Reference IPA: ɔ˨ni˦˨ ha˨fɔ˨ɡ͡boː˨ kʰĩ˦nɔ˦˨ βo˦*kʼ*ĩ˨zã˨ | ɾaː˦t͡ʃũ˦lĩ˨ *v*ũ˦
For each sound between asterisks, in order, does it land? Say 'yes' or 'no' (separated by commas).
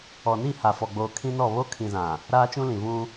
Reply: no, yes